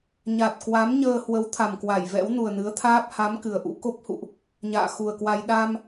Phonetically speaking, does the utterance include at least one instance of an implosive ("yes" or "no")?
yes